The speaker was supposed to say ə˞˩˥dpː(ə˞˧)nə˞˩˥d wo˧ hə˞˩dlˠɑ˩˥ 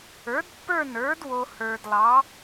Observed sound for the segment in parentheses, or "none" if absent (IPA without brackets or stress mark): ə˞˥˩